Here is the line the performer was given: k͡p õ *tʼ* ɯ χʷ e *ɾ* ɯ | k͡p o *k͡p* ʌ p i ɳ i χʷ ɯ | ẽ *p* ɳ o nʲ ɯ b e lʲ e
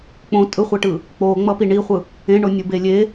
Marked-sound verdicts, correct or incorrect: correct, incorrect, incorrect, incorrect

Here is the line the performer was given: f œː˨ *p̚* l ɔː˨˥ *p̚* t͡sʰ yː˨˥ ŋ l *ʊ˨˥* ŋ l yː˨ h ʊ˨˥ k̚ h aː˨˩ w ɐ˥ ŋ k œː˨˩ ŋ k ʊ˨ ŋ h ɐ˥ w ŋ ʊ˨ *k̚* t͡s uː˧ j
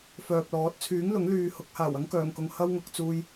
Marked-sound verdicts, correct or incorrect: correct, incorrect, correct, correct

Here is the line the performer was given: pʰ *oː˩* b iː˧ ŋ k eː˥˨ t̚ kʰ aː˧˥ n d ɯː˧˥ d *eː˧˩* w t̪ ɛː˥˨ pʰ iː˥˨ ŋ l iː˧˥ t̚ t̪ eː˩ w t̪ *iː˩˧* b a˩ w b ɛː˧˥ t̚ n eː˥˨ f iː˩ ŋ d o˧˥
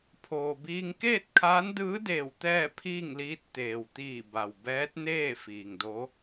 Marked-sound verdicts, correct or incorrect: correct, correct, incorrect

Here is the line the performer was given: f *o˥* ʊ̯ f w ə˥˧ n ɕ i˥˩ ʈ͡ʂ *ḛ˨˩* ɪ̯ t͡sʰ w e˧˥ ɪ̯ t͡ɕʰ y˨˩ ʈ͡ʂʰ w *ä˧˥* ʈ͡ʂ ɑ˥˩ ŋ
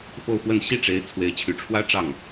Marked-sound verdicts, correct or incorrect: incorrect, incorrect, incorrect

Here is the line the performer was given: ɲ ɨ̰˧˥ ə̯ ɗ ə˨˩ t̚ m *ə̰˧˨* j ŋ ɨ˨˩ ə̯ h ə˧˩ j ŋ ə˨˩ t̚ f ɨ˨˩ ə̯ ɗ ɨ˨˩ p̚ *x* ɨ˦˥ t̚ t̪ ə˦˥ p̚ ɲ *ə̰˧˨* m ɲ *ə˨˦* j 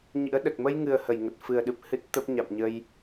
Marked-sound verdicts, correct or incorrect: incorrect, incorrect, incorrect, incorrect

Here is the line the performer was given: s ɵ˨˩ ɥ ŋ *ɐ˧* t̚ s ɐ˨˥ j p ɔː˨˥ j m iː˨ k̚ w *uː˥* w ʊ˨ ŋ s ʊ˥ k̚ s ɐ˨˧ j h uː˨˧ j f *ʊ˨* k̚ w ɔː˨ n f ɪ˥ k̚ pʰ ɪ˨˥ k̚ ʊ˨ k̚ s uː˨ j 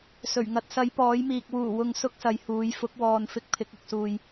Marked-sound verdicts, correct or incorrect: correct, incorrect, incorrect

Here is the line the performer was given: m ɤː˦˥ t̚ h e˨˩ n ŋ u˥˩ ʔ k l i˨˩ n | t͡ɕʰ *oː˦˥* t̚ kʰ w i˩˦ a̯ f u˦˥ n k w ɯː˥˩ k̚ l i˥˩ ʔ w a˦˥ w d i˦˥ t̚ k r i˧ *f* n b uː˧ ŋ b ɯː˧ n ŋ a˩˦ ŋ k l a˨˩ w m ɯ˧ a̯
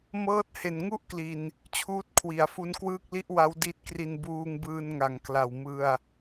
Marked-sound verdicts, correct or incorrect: incorrect, incorrect

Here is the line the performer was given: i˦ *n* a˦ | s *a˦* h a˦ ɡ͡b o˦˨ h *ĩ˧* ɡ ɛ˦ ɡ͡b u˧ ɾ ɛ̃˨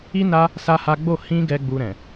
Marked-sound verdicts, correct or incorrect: correct, correct, correct

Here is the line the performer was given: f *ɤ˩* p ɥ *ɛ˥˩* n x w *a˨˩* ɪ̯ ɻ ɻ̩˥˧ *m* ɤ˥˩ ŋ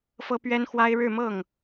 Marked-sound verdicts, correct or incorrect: incorrect, incorrect, incorrect, correct

